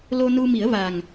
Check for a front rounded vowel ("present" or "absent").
absent